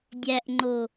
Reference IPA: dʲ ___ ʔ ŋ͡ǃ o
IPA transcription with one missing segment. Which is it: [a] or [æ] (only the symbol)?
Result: æ